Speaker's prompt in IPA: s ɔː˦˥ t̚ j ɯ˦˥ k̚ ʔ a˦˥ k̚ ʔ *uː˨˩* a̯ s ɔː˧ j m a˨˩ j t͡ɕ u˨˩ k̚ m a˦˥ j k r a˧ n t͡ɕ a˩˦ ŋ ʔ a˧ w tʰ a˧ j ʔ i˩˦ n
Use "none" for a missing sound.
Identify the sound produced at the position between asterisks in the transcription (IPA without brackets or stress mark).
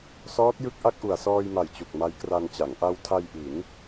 u˨˩